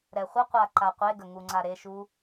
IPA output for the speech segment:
ɾɛχʷəqʷa ǃaqʷeɡə ŋuŋ͡ǀaɾeʃu

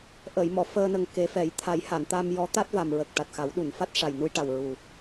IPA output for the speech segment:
ʔəː˨˩˨jmɔ˨˩˨ fəː˧nə˨˩ŋ ke˨˩˦fɛ˨˩˦j t̪ʰa˨˩˦jha˨˩˨n t̪a˧mjɔ˧˥t̪a˦˥t̚ va˨˩mɹə˨˩k̚ ʈa˨˩t̚xa˨˩˦wɗu˨˩˨nfa˦˥t̚ ʂa˨˩jnu˧jʈa˨˩w ɹu˨˩

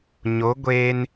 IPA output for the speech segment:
ɲo˨˦ɡʷe˧n

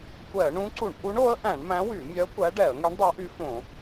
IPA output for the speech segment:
kʷɛ˧˩˧ə̯ɳũ˧˥ǀu˧˩˧ɳ ʔu˧˥ɳo˧˥ə̯ʔæ̃˧˩˧ɳ mæ̃˧˥wy˧˩˧mʲœ˧˥ kʷæ˧˥ ɖɛ˧˩˧ə̯ ŋy˧˥ɳ dˤɛ˧˥ʔy˧˥fõ˧˩˧

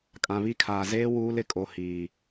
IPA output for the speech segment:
kʼã˨βi˦ kʰaː˨zeː˦ wuː˦lɪ˦kʼo˨ hiː˨

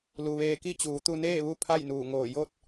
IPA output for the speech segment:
lu˩ʋeː˧ ki˥˨t͡ɕuː˩˧t̪u˧neː˥˨ ʋu˥˨ pʰa˥˨jnuː˧˩ŋoː˧˩ jo˥˨t̚

